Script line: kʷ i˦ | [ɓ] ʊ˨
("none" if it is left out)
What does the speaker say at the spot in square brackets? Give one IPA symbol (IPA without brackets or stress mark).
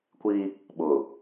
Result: ɓ